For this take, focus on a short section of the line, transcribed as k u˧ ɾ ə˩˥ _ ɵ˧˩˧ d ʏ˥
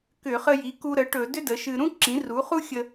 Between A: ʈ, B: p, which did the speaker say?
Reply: A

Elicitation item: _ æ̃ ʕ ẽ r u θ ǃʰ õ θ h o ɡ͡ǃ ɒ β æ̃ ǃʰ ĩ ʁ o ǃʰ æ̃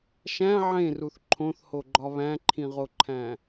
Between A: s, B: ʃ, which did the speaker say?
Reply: B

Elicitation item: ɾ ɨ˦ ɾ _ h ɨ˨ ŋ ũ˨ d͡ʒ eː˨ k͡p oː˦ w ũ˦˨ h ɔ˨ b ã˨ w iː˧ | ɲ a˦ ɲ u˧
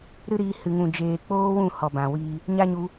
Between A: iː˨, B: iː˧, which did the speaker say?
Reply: B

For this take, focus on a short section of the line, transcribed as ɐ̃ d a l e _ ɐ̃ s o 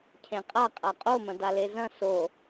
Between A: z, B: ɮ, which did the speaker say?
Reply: A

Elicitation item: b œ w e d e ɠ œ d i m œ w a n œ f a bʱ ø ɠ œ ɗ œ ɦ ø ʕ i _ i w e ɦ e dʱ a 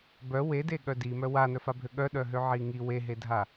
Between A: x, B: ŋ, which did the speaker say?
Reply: B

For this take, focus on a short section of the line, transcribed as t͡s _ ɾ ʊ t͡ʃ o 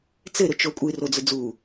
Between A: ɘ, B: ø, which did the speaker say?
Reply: A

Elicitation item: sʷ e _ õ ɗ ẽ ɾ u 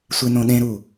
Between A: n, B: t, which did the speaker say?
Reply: A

